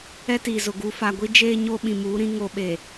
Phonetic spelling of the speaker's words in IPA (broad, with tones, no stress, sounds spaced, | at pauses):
ɛ˦ t iː˨ z ʊ˨ ɡ u˨ f a˨ ɡʷ i˦ d͡ʒ eː˦ ɲ o˦ ɓ ĩ˨ m uː˨˦ ɾ ĩ˦ ŋ o˦ ɓ e˨